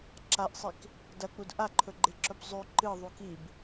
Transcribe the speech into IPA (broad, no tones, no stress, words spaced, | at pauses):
ǁaʔsˤik | dɐk͡pud ʔaǃʰɵɡ͡ǃeǁɵb zˤʉ ǃɨðˤu kib